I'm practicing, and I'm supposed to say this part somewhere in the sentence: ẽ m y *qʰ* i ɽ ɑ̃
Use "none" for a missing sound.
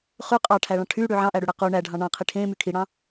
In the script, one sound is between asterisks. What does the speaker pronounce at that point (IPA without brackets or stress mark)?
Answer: kʰ